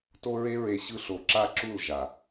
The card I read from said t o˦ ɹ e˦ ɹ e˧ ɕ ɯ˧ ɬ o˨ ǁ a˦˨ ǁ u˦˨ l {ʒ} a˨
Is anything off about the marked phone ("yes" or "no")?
no